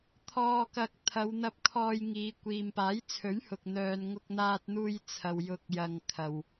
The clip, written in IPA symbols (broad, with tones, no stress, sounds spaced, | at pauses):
t̪ʰ ɔː˧ k ɐ˧ k̚ t̪ʰ ɐ˨˧ w n̪ ɐ˧ p̚ kʰ ɔː˧ j ŋ iː˨˧ kʷ iː˨ m p aː˨˥ j t͡sʰ ɵ˨˥ ɥ h ʊ˨ k̚ n̪ œː˨ n ŋ ʊ˧ k̚ n̪ aː˧ t̚ n̪ uː˧ j t͡sʰ ɐ˨ w j ʊ˨ k̚ j ɐ˨ ŋ kʰ ɐ˨ w